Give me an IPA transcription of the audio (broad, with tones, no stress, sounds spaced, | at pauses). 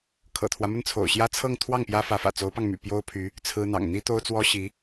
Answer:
kʰ ɤ̰˨˩ t̪ʰ w ä˦ m ə˥˩ n t͡sʰ o̰˨˩ ʊ̯ ɕ j ä˥ t͡sʰ ɤ˥˧ ŋ t̪ʰ w ɑ˥˩ ŋ p j ä˥ f ä˧˥ f ä̰˨˩ t͡s o˧˥ ʊ̯ p ɑ˧ ŋ m y̰˨˩ p j o˥ ʊ̯ pʰ y˧˥ | t͡sʰ ɹ̩˥ n̪ ɑ̰˨˩ ŋ n̪ i˥ t̪ o˥ ʊ̯ t͡s w ɔ˥ ɕ i˧˥